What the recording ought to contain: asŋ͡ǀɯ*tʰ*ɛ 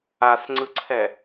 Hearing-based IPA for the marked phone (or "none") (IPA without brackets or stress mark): ǀʰ